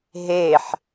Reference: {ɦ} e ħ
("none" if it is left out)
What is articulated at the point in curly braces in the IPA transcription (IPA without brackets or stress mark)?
ɦ